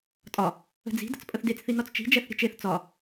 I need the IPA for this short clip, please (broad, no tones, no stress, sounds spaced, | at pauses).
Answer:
tʼ ɒ | ə̤ d͡z i̤ d ə̤ t͡s pʼ ə θ d e t͡s θ i n ɒ t͡s t͡ʃ i̤ d͡ʒ ɛ θ ɾʲ ə̤ t͡ʃ e θ t͡s ɒ